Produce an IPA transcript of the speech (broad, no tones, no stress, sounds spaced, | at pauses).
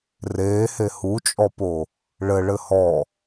r eː h e h u t͡ʃʼ ɔ p o | ɭ ɘ ɭ ɘ h ɔ